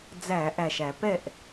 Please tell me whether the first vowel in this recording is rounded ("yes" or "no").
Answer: no